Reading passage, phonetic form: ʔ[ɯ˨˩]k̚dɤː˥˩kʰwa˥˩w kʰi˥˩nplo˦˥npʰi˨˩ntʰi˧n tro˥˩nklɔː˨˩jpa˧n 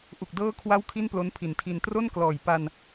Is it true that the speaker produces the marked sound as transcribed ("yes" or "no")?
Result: no